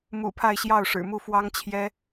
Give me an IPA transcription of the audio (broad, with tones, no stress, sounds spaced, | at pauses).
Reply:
m ṵ˨˩ pʰ a˥˧ ɪ̯ ɕ j ɑ˥˩ ʊ̯ ʂ ɻ̩˨˩ m u˥˩ f w ɑ˥ ŋ t͡ɕʰ j ɛ˥